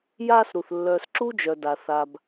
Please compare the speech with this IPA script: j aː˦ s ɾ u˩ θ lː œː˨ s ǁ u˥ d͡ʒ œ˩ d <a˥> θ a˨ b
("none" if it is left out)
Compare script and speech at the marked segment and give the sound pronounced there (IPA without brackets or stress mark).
a˩